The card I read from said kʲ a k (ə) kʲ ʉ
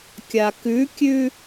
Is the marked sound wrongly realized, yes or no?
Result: yes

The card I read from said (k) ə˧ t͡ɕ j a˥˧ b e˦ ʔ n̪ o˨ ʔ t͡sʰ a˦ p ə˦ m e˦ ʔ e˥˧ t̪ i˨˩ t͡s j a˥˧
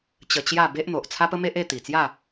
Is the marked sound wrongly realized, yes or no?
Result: yes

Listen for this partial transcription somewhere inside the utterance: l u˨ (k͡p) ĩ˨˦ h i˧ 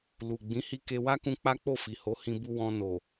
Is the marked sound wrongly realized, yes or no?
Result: yes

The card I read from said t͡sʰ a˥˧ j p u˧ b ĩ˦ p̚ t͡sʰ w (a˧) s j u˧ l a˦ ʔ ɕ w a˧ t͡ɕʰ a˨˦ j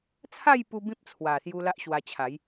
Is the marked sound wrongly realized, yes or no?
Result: yes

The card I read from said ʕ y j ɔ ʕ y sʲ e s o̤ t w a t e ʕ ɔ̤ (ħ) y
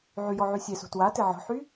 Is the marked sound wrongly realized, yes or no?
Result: no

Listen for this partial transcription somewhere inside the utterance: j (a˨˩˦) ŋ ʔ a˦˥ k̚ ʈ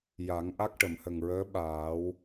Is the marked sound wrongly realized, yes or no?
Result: no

